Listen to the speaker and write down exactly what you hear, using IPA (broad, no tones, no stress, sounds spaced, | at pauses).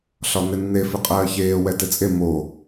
ɬ ɒ n ɪ nː e f ɪ qʼ ɜː ç eː w ɛ t ɪ t͡sʼ e m o